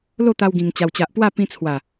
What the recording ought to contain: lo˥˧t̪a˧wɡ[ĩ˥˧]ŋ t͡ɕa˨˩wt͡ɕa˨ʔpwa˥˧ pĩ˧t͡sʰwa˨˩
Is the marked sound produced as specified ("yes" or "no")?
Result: no